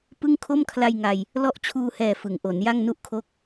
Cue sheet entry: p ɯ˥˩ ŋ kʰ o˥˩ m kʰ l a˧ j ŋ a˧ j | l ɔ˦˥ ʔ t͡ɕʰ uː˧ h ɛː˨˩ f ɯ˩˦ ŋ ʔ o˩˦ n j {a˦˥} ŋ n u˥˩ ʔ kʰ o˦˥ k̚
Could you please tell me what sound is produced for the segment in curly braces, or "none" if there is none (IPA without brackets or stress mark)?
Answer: a˥˩